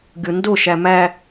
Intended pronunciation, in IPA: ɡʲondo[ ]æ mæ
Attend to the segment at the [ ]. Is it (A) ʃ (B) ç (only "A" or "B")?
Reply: A